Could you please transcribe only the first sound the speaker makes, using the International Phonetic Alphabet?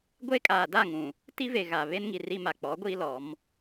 ɡʷ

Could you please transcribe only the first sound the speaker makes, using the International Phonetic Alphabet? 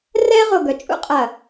r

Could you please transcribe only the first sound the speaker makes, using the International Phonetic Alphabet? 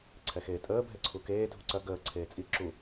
ǀʰ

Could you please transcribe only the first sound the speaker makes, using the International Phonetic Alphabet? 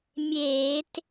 mʲ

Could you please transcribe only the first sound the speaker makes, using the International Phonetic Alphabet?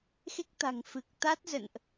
x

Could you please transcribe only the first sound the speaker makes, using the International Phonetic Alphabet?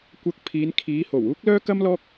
kʷ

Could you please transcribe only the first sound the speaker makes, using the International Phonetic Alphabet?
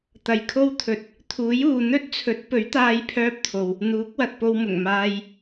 t̪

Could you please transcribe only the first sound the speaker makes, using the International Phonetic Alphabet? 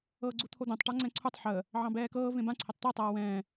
ɤː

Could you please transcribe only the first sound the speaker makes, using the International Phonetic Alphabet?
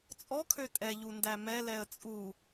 t͡sʼ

